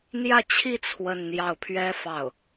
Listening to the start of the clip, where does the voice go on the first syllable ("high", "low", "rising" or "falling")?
falling